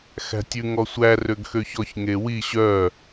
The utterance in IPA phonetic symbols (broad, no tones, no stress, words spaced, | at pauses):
xæ̤tʲʉ ŋɔsʷæ røɡxøçɔç ŋewi ɕœ